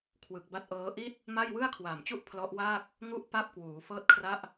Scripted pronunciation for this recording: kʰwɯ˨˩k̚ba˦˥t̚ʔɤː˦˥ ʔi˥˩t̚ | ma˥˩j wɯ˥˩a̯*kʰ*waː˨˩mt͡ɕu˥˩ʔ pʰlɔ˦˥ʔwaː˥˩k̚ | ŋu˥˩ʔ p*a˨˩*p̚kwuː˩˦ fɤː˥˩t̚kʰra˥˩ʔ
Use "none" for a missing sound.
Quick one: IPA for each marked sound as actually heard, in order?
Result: kʰ, a˥˩

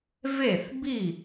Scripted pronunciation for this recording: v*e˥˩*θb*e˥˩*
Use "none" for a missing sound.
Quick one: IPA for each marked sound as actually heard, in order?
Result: e˥˩, i˥˩

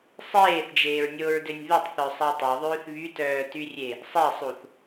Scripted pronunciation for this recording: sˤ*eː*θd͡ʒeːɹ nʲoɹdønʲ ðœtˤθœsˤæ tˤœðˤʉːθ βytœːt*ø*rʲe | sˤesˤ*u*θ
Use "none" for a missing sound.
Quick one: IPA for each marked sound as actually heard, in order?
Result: eː, y, u

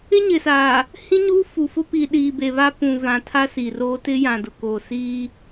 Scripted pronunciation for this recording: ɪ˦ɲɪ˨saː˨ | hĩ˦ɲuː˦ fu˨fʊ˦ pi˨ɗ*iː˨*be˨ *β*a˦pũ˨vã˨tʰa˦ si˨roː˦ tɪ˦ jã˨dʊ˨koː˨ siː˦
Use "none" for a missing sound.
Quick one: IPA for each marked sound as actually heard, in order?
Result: iː˨, β

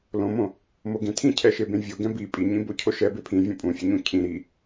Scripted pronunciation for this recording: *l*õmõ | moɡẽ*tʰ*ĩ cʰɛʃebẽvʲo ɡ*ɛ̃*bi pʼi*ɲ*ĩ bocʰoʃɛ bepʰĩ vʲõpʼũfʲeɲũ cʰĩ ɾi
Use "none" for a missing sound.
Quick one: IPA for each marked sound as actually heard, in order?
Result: l, tʰ, ɛ̃, ɲ

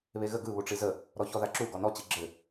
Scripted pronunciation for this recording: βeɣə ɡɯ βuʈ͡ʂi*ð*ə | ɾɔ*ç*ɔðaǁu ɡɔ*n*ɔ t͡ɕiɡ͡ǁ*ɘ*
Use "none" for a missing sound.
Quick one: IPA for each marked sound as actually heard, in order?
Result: z, ç, n, ɘ

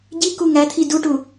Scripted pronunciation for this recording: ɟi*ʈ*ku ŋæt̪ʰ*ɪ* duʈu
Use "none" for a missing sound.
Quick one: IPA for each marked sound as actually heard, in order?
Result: none, i

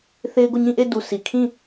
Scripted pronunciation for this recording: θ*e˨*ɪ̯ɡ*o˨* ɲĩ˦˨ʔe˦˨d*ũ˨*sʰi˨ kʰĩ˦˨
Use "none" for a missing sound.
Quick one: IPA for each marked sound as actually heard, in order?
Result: e˦, o˦˨, u˨

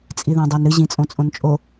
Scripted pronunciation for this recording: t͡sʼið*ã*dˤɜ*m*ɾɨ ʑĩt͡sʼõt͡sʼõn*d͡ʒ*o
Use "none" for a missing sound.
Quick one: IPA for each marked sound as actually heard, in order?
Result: ã, n, t͡ʃʼ

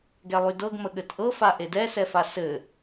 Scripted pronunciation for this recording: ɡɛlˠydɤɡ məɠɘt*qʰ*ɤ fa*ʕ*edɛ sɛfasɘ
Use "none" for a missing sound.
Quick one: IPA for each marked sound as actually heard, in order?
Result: ʔ, ʔ

